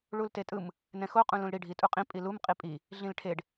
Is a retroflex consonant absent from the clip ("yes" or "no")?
no